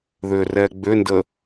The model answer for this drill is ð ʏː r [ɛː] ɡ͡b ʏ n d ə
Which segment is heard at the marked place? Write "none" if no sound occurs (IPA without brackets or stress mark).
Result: ɛː